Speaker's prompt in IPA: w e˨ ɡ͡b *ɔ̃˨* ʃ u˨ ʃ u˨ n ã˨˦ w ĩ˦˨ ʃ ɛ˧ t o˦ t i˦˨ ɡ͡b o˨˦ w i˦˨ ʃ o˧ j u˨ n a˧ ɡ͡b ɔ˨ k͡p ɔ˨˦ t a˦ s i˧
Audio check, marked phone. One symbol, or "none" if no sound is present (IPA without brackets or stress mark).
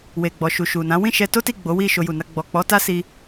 ɔ˨